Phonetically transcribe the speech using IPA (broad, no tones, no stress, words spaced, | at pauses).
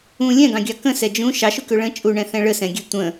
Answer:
ũ lʲɛ̃ɡɑ̃ɡʲɑ kə̃sɛ d͡ʒũ ʃɑʃukø ɭə̃ t͡ʃʼuɳɛ̃θɛ̃ ɭəsɛ̃ɡʲɛ tʷə̃